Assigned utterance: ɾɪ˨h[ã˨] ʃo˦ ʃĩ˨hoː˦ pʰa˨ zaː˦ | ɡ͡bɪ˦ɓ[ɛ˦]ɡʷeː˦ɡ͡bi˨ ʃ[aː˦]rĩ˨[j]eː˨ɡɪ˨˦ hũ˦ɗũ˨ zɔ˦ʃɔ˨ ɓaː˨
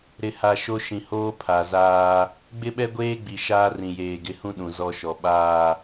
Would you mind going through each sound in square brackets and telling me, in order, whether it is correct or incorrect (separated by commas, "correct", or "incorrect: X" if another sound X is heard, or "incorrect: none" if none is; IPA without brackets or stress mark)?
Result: incorrect: a˨, correct, correct, correct